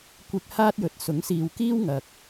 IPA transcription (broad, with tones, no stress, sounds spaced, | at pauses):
kʷ ɪ˧ k̚ h aː˥ t̚ j ɵ˨˥ t̚ s ʊ˨˥ ŋ s iː˨ w k iː˥ w ŋ ɐ˨ k̚